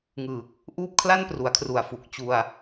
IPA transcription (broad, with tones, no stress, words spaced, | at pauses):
ŋɯː˨˩k̚ | ʔuː˥˩p̚kʰla˥˩npru˩˦a̯kʰru˨˩a̯ fu˨˩k̚t͡ɕu˧a̯